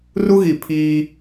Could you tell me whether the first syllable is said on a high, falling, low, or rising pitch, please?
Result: high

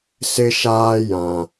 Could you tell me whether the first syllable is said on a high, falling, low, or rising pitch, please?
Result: high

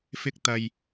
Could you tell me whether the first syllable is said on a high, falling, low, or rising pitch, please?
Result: high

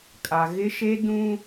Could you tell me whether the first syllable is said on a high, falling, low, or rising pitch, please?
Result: low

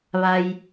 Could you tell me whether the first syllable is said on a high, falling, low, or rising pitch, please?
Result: low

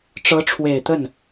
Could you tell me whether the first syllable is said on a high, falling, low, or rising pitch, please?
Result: rising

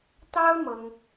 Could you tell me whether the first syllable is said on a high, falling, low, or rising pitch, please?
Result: high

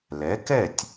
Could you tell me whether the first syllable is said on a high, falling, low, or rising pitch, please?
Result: rising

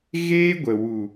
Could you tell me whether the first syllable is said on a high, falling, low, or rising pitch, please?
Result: high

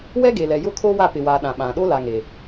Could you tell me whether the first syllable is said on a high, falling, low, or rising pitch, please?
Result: high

